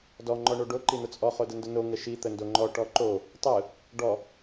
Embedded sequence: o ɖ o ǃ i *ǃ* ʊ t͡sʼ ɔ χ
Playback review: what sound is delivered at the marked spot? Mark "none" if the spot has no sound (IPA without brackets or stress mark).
n̪